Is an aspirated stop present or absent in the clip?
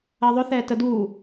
absent